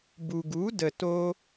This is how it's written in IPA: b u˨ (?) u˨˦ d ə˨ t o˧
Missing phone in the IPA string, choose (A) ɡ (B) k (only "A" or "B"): A